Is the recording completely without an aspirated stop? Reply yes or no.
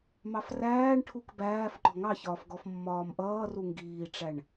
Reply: no